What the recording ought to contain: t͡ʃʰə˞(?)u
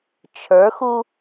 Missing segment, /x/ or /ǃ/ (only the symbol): x